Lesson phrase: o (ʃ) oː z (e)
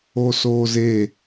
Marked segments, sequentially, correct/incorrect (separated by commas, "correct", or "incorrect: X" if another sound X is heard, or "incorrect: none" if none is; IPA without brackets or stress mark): incorrect: s, correct